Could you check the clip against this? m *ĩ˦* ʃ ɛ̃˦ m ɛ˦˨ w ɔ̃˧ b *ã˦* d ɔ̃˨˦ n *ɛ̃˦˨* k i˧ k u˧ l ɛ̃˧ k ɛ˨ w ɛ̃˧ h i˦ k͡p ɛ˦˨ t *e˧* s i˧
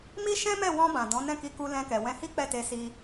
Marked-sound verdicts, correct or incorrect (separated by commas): incorrect, incorrect, correct, correct